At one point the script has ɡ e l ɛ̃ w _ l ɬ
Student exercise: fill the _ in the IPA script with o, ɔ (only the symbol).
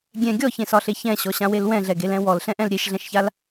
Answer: ɔ